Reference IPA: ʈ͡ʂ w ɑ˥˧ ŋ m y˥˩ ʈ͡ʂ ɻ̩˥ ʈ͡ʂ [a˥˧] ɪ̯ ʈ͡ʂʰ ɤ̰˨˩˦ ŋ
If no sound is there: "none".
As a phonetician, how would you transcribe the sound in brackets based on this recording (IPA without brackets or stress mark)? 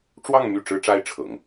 a˥